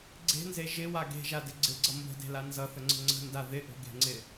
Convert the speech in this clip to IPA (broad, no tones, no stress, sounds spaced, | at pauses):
ɡ͡ǀ e̤ n z e ʒ ɪ w a ɡ e̤ ʒ a d ɪ ɡ͡ǀ ɪ ɡ͡ǀ ʌ m b ə̤ d e̤ l a n z ʌ θ ə ŋ͡ǀ ə̤ ŋ͡ǀ ə̤ n d a ð ɪ ʔ o̤ ɡ e̤ ŋ͡ǀ ɪ